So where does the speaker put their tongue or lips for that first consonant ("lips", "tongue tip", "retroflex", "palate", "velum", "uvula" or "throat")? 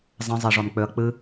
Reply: tongue tip